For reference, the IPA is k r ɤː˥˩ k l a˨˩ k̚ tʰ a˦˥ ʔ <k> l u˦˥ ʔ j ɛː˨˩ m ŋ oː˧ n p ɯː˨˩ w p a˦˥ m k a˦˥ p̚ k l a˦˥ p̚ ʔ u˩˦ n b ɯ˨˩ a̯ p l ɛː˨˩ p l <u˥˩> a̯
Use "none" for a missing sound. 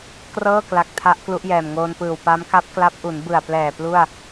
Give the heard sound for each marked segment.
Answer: k, u˥˩

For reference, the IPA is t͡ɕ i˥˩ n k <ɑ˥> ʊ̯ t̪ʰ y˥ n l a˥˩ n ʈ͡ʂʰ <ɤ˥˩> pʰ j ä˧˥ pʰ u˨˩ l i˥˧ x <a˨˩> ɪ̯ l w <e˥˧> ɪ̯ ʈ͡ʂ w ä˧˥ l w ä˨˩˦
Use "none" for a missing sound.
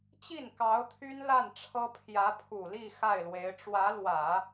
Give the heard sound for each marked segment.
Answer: ɑ˧˥, ɤ˥, a˥˩, e˧˥

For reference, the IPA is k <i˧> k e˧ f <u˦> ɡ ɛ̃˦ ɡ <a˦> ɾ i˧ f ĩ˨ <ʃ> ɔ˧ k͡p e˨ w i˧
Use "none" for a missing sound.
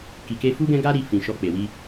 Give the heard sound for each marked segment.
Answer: i˨, u˦, a˦, ʃ

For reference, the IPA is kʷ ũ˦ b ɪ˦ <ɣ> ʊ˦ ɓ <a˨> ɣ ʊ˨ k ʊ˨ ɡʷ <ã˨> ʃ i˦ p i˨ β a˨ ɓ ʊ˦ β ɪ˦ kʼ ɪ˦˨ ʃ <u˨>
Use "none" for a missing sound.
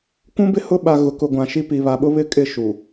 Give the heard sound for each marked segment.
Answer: h, a˨, ã˨, u˨

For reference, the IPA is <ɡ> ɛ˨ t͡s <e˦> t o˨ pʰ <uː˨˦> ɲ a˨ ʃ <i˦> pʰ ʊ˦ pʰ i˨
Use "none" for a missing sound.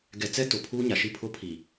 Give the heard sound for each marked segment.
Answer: ɡ, ɛ˦, uː˦, i˦

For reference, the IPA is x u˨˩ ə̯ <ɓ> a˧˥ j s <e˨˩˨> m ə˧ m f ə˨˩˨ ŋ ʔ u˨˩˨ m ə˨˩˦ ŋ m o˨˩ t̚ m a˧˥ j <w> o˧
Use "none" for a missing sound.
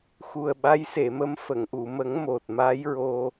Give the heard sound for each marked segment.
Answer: ɓ, e˨˩˨, ɹ

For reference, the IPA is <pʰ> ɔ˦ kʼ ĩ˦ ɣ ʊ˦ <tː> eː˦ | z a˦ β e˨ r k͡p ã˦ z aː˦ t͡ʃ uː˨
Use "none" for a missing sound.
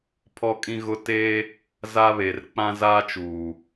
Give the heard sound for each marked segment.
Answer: pʰ, t

